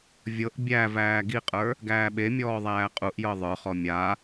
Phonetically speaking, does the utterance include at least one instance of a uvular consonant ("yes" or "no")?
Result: yes